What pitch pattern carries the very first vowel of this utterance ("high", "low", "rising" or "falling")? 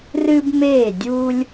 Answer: high